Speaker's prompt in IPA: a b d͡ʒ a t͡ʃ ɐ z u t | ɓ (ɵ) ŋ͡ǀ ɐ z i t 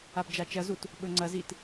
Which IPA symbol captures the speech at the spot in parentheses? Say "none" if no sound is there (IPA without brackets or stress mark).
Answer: ɵ